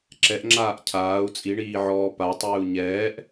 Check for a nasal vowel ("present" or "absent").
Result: absent